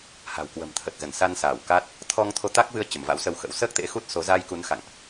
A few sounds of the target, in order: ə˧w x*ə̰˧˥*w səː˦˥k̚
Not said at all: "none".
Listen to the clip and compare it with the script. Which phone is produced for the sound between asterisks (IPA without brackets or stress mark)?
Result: ə̰˧˥